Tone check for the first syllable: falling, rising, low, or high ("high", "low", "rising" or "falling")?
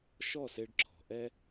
falling